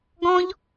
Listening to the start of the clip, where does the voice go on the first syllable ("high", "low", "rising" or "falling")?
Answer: high